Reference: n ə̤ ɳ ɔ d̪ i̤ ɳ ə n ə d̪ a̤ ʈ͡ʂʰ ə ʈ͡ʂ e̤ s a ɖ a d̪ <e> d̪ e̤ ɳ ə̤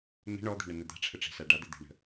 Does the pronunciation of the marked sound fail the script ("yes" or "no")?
no